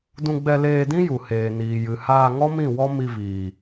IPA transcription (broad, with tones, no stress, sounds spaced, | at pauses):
d ũ˧ ɡ͡b ɛ˧ l eː˧ d ĩ˦ j u˨ h eː˨ n iː˨ j ɨ˨ h aː˧ ŋ ɔ˦ m ĩ˦˨ w ɔ˦ m i˧ v iː˨